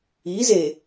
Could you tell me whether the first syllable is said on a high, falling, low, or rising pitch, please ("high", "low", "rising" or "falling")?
rising